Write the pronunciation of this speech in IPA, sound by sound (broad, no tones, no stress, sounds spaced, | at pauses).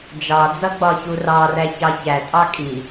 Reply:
d͡ʒ ɑ d͡z ʌ ɡ͡b ɒ ç u r ɑ r æ ç ɑ ç æ tʼ ɑ kʼ i